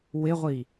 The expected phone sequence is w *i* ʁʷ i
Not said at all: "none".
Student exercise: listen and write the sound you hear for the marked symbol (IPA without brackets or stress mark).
ɪ